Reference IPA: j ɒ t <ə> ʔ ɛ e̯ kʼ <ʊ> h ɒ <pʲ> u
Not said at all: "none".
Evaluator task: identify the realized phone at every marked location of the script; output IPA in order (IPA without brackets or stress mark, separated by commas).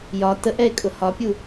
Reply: ə, ʊ, pʲ